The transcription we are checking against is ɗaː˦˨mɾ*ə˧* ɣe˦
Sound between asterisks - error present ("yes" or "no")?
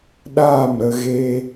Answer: no